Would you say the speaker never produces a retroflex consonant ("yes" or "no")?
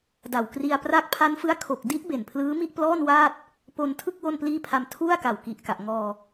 yes